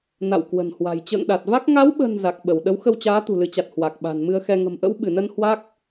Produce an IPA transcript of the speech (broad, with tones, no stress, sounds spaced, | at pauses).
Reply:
n a̰˧˨ w k w ə̤˨˩ n h w a̤˨˩ j t͡ɕ ə̰ː˧˨ ŋ ɗ a˨˩ t̚ v a˦˥ k̚ ŋ a˨˦ w ɓ ə̤˨˩ n z a˨˩ k̚ ɓ ə˧˩ w ɗ ə˨˦ w x ə˧ w t͡ɕ aː˨˦ t̪ ṳ˨˩ l ɨ˨˦ t͡ɕ a˨˩ t̚ h w a˨˩ k̚ ɓ a̤˨˩ n m ɨ˧ ə̯ x ɛ˧ ŋ ə̤˨˩ m ʔ ə̰˧˥ w ɓ ɨ˧˩ n ə˧ n h w a˦˥ k̚